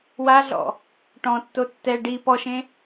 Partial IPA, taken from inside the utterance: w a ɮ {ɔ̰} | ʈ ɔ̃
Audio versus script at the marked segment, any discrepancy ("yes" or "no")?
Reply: no